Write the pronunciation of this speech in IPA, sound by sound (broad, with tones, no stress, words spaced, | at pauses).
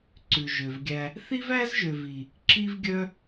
ǀʉ˨ʒø˨vɡʲæ˧ | θi˦væ˦zʒø˨vi˨ | ǁi˦vɡʲœ˦